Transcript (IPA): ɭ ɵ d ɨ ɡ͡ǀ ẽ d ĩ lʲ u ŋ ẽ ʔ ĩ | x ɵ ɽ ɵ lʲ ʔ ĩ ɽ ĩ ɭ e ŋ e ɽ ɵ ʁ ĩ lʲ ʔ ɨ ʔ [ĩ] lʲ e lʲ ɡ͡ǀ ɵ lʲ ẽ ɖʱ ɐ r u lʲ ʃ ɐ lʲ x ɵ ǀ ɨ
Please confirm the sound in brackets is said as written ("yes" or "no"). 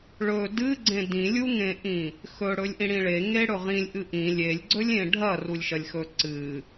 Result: yes